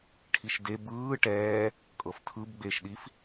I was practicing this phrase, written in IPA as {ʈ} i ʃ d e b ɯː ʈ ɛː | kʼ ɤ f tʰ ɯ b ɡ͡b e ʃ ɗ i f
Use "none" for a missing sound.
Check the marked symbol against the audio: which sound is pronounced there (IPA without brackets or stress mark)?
ʈʰ